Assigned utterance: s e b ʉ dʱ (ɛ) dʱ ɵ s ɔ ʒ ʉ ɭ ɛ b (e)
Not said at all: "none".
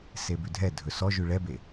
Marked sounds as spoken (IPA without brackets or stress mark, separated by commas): ɛ, e